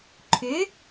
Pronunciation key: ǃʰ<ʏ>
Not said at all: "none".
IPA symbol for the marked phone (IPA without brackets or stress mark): ʏ